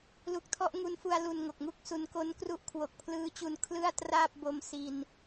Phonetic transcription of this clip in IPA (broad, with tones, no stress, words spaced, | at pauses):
lu˨˩k̚ tʰɔ˥˩ʔ ŋu˧nfu˧a̯ lu˧n ŋo˨˩k̚ŋu˦˥k̚su˧n ko˦˥n kru˦˥ʔkʰwo˨˩k̚pʰlɯː˦˥t͡ɕu˧n kʰlɯ˥˩a̯traː˥˩p̚bo˧m si˧n